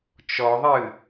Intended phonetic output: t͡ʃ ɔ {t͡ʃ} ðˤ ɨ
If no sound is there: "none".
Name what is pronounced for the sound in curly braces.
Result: none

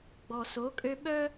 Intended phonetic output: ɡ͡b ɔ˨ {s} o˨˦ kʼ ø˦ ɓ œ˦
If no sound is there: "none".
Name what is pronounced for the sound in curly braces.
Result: s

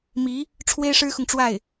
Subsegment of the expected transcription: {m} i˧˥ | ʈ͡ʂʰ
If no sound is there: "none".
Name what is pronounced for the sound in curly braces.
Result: m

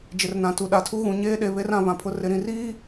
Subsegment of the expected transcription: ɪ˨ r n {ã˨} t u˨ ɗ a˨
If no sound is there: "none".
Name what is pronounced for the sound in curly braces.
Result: ã˨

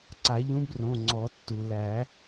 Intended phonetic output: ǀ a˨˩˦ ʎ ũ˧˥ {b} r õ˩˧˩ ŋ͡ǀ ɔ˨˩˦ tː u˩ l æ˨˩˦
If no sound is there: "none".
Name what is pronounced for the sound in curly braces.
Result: b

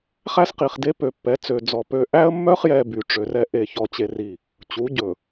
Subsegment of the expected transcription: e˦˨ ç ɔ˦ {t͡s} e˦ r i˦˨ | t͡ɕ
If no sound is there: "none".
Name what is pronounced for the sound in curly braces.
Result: t͡ɕ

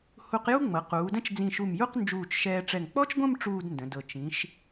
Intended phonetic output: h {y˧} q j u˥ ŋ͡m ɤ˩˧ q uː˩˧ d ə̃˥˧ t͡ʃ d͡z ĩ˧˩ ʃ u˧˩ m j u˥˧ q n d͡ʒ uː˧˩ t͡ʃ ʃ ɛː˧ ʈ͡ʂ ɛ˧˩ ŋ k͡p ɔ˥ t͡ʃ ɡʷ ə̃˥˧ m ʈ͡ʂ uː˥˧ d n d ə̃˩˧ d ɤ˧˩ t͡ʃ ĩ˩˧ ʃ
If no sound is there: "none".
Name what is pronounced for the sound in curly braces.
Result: u˧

